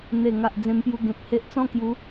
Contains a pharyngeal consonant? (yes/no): no